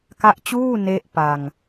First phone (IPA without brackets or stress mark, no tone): k